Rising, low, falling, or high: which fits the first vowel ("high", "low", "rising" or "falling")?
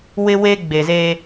high